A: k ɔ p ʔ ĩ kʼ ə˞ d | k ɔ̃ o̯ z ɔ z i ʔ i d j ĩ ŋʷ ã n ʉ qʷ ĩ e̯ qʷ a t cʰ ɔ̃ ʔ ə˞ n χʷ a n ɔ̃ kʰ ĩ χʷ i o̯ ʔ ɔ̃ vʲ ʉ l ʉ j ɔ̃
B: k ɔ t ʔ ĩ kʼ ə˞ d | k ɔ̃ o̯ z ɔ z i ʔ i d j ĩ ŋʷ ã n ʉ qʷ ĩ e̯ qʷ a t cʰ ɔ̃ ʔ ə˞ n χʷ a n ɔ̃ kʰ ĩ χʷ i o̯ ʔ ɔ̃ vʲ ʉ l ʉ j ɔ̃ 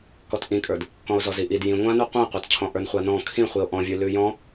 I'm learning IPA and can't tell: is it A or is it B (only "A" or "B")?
B